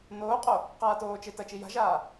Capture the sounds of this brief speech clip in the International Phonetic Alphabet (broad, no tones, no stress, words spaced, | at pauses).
noːqʼo | qaːtoːt͡ʃe tɐt͡ʃi ja̤ʒaː